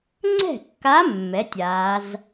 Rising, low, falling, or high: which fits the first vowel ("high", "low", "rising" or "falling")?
falling